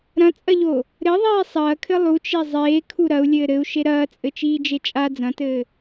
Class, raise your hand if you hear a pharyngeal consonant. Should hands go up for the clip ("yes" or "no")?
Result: no